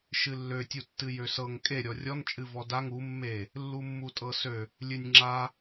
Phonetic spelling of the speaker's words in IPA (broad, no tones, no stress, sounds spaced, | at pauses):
ʃ ɨ lː ø tʲ u tː ɨ j ø s ɤ ŋ kʼ e ɾʲ ɔ rʲ ɔ n t͡ʃʼ ɨ v ɔ d a ŋ u mː e | lː u mː u tʼ ɤ s ø | lʲ ɨ nʲ ŋ͡ǁ a